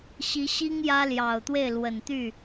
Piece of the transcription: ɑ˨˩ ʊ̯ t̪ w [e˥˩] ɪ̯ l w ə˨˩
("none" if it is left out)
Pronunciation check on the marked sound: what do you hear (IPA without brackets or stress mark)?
e˥˩